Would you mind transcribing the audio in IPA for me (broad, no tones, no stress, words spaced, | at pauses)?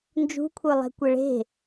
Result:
nd͡ʒṳkʷʰə˞lˠɛ̤kʷɛ ɭe̤